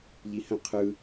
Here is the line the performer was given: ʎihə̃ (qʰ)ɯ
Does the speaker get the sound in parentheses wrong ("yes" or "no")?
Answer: no